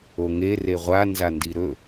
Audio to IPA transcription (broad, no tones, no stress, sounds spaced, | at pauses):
o ŋ e r e ʁʷ a n z a n d i ɾ ɵ